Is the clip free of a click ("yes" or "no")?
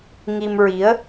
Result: yes